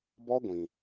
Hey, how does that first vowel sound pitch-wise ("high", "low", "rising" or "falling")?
high